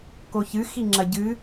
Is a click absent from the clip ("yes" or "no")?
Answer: no